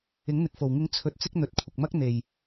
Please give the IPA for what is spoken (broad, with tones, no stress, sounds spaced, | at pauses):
ɪ˨˥ ŋ n̪ ɪ˨ k̚ f o˨˩ w ŋ ɪ˧ ŋ t͡sʰ ɵ˨ t̚ t͡s ɪ˧ k̚ n̪ ɵ˨˥ t̚ kʷʰ ɪ˨ k̚ m ɐ˥ k̚ n̪ e˨˩ j